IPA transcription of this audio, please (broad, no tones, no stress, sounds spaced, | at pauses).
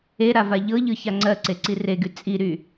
e ɾ a v a ʎ ɤ ʎ ɯ ç a ŋ͡ǀ ɜ ǀ e ǀ i r e ɡ y t͡sʼ i ɾ y